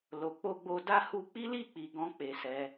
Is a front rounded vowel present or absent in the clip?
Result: absent